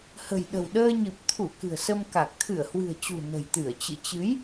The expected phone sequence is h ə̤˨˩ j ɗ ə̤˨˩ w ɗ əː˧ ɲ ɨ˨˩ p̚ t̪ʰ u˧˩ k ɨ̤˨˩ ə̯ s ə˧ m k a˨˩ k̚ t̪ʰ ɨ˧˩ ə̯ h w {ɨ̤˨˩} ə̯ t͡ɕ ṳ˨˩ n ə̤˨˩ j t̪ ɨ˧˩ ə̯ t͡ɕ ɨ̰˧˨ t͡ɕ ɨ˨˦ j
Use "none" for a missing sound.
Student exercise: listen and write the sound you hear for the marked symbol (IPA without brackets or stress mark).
ɨ̤˨˩